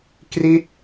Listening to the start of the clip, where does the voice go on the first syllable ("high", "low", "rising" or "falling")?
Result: falling